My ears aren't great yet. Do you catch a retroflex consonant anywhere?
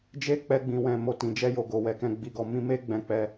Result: no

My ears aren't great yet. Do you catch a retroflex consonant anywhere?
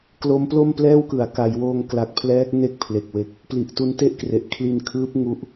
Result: no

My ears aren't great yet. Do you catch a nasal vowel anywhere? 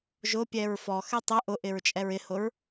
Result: no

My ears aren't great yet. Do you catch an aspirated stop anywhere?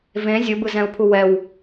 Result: yes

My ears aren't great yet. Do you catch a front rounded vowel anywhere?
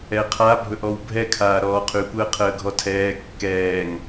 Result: yes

